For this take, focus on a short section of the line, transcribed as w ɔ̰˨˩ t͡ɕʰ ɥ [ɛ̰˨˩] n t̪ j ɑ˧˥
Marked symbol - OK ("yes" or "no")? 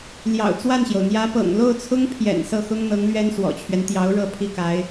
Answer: no